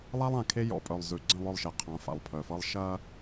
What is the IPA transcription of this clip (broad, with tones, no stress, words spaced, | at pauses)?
lˠa˦lˠã˨kʰe˦ jɔ̰˨pʼœ˨lˠzʉ˨ ɡ͡ǀə̃˦˨lˠœ˦˨lˠʃe˨ qʰã˨˦fa̰˨lˠpʰœ˨fɤ˦lˠ ʃɐ˦